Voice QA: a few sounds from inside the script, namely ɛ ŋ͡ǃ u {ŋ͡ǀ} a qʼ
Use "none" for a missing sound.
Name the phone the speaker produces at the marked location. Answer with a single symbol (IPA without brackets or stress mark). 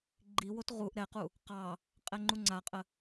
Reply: ŋ͡ǀ